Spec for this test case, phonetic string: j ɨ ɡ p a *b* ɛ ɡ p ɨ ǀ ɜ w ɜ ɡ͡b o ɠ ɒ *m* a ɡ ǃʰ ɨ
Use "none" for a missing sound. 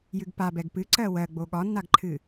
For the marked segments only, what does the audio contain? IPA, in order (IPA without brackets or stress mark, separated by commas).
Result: b, nː